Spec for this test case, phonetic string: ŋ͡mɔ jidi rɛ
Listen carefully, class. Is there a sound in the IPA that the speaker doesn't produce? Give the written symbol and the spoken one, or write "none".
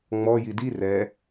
none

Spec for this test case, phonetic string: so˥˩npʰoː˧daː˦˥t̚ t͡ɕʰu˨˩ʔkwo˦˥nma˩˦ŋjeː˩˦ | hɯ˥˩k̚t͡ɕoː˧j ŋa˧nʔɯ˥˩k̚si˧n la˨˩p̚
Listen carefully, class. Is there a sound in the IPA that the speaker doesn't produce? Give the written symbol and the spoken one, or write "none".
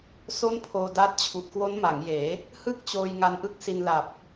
none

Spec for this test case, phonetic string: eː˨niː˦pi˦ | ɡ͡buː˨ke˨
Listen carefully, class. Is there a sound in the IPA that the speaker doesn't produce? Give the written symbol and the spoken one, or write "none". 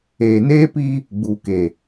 iː˦ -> eː˦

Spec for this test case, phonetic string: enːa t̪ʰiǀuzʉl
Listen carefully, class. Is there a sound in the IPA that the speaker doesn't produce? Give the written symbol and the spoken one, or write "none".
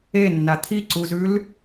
none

